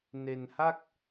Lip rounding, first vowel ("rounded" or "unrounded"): unrounded